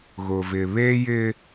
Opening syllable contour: low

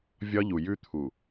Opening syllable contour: high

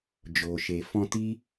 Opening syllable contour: low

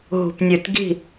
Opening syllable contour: low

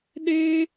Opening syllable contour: high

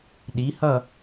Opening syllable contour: rising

